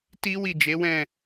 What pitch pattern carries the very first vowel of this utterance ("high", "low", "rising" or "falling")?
high